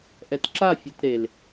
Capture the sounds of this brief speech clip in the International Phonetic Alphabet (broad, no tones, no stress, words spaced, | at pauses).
ʔɛtǁafʲet ɾel